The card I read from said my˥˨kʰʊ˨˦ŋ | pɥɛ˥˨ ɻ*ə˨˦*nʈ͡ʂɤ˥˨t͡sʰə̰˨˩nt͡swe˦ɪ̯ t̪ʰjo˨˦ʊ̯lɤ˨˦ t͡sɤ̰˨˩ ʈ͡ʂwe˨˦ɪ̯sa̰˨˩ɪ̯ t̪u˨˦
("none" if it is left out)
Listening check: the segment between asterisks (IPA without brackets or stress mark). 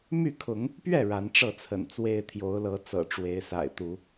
a˨˦